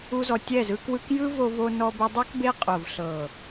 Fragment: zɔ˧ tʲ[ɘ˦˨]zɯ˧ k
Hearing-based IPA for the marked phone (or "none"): ɛ˦˨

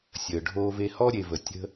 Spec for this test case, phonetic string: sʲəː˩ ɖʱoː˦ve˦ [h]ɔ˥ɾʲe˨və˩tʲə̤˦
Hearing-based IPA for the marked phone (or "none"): h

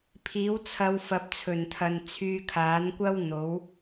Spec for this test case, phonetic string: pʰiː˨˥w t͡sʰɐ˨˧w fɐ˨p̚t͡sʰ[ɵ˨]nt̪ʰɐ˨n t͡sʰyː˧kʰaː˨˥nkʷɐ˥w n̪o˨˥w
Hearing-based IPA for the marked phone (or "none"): ɵ˨˩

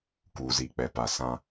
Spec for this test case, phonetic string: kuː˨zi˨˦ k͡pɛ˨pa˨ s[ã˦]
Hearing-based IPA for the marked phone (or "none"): ã˦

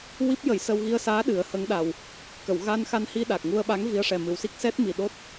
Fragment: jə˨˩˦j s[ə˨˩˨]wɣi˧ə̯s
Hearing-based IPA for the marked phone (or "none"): ə˧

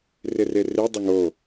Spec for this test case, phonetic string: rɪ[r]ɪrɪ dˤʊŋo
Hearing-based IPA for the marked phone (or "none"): r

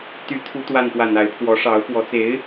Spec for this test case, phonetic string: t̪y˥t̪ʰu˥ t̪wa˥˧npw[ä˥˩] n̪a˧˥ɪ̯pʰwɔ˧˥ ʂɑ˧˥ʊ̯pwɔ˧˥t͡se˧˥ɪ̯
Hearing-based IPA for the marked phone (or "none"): ä˥˩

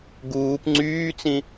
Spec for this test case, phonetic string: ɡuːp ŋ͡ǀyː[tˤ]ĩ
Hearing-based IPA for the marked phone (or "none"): t͡s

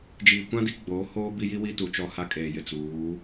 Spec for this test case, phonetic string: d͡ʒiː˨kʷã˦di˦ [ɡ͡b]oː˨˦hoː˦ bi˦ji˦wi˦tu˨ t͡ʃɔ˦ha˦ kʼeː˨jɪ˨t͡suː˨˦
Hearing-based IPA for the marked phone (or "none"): ɡ͡b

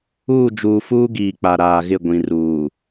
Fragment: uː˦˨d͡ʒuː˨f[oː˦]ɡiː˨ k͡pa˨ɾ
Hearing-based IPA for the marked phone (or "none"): uː˦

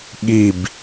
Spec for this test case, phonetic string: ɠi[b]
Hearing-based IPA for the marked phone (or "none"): b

